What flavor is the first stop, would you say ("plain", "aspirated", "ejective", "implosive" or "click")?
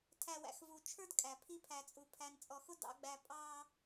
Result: aspirated